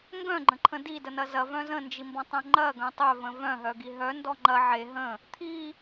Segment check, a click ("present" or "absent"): present